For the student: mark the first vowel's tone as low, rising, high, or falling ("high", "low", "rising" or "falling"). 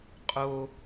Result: low